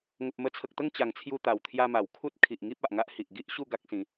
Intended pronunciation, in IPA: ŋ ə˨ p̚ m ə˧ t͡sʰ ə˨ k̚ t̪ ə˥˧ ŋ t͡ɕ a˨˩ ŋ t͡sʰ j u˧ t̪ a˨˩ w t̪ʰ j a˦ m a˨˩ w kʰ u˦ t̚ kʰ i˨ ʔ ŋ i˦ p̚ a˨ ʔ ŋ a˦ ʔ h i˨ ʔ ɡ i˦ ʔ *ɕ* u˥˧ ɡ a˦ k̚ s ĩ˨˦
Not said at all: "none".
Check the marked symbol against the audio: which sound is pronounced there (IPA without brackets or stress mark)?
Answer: ɕ